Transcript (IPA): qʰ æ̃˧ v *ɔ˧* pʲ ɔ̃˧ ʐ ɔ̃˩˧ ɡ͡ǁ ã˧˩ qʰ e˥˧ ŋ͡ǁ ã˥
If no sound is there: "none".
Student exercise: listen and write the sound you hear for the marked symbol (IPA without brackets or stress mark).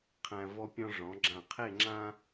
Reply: ɔ˧